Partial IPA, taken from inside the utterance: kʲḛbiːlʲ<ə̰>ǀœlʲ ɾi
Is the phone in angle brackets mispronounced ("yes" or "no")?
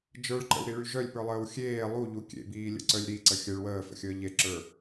no